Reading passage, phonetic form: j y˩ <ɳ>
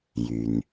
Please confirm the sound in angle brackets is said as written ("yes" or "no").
no